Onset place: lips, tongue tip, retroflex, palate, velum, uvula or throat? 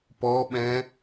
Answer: lips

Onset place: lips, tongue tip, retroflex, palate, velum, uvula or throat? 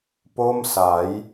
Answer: lips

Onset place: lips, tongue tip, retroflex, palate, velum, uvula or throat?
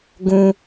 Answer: velum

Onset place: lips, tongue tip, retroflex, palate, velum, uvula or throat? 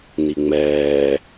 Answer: tongue tip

